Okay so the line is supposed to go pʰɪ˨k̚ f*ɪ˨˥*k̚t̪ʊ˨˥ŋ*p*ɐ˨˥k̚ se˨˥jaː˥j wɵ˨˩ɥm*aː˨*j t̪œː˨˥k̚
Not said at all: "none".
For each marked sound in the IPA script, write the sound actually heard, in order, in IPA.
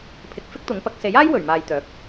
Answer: ɪ˥, p, aː˨

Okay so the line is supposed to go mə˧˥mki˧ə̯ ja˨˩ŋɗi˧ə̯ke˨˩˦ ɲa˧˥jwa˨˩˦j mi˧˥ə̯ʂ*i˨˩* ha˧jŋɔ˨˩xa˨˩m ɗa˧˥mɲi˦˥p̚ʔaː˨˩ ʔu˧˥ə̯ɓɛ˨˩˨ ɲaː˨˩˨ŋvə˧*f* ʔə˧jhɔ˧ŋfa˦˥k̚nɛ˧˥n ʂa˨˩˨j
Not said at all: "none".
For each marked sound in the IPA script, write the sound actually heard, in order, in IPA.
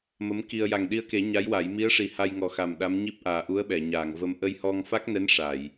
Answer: i˨˩, m

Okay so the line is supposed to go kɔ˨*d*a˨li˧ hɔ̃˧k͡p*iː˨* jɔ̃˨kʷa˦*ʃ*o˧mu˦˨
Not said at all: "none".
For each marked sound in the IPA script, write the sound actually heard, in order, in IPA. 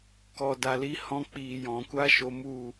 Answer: d, iː˨, ʃ

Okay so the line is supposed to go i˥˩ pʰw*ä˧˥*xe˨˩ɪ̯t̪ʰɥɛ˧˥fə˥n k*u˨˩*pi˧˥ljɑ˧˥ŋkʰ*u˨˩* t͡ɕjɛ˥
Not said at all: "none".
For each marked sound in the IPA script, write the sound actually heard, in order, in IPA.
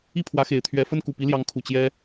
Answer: ä˧˥, u˨˩, u˨˩

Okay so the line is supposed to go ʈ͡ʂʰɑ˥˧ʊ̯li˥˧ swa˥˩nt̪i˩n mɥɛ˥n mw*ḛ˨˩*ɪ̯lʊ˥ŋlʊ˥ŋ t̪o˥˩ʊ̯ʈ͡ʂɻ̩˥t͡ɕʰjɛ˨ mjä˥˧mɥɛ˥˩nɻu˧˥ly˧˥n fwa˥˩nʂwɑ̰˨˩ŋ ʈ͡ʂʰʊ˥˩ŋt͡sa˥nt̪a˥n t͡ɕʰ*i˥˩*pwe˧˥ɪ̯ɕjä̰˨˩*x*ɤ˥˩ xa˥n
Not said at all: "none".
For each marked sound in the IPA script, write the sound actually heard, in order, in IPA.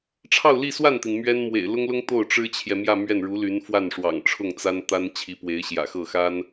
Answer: ḛ˨˩, i˧˥, x

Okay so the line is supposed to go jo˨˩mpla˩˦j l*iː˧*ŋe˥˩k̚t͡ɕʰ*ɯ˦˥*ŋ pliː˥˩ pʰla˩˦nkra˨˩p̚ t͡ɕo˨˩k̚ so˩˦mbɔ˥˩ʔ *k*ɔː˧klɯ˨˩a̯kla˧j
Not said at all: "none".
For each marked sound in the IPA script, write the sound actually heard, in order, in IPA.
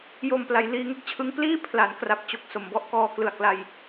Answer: iː˧, ɯ˦˥, k

